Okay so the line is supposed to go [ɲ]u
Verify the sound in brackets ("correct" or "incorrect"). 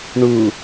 incorrect